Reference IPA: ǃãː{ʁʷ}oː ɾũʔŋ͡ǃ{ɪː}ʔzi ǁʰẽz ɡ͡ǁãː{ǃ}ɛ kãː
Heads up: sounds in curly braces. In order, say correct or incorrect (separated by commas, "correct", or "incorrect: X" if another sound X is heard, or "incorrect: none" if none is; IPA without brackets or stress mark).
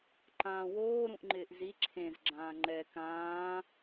incorrect: w, correct, incorrect: ŋ͡ǃ